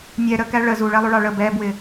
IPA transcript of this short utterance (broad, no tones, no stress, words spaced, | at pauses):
nʲɛ ɾəkæ ɭə zuɭɛlˠuɭɑ ɭə bɛbwɪ